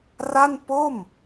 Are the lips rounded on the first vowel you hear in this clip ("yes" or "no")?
no